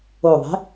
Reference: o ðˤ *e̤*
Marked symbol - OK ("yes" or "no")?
yes